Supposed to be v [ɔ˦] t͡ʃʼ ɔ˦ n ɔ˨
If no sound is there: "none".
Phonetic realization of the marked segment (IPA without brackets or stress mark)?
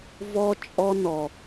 ɔ˦